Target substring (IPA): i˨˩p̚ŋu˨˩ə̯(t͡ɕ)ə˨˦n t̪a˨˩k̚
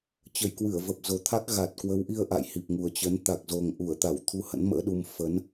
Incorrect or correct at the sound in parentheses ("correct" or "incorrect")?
correct